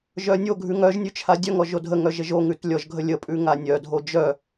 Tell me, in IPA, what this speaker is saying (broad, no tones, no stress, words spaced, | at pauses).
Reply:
ʒœnʲoɡʱʉŋ œʒnʲʉ t͡ʃʰadʲœŋɔ ʒodʱəŋœ ʒəʒoŋʉt lʲɔʒɡʱə lʲəpʼʉ ŋanʲœdʱo d͡ʒœ